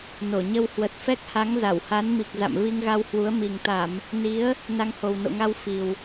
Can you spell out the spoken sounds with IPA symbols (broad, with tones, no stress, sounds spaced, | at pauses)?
n o˧˩ ɲ ə˧ w h w ə˨˩ t̚ f ɛ˦˥ k̚ h a˨˦ ŋ z a˧˩ w h a˨˦ n m i˨˩ k̚ z a̰˧˨ m v i˧ ŋ ɣ a˧ w h w u˨˦ ə̯ m i˨˩ ŋ t̪ a˧˩˨ m | n i˨˦ ə̯ | n a˧ ŋ h o˨˩ w n o̰˧˨ ŋ a˧ w f i˨˩ w